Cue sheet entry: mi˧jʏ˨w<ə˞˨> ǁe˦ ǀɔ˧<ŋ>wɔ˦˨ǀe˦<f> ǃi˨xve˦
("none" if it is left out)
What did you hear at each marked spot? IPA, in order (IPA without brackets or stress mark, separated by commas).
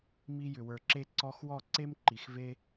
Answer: ə˞˨, x, m